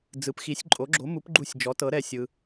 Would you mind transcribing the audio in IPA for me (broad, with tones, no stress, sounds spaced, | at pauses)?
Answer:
d͡z ɯ˩˥ p x i˩˥ sʲ ǃʼ o˩˥ ɡ͡ǁ o˩˥ m u˩˥ p ɡ͡ǃ u˧˩ sʲ d͡ʒ ɔ˩˥ t ɤ˩˥ ɾ ɛ˧˩ sʲ ɯ˩